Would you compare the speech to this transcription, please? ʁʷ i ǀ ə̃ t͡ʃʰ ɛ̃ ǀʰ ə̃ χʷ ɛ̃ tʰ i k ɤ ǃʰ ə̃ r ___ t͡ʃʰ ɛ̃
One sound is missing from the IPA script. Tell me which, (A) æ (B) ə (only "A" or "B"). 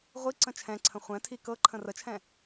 B